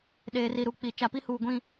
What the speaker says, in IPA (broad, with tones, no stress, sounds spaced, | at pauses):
ɗ eː˨ r i˨ ɾ u˨ k͡p i˨ t͡ʃ a˨ p i˦ h uː˨ ɡʷ ĩ˦